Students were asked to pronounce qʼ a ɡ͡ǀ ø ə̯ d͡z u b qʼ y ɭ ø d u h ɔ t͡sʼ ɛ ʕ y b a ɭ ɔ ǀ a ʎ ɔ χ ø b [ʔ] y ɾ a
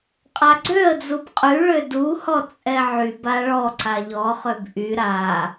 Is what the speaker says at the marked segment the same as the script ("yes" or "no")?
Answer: yes